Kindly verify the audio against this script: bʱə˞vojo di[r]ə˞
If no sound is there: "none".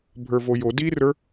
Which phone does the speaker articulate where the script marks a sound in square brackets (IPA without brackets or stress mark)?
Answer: r